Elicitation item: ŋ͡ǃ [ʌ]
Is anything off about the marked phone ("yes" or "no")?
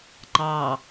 yes